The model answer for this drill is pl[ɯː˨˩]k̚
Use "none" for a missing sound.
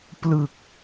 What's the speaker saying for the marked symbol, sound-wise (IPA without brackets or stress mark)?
ɯ˨˩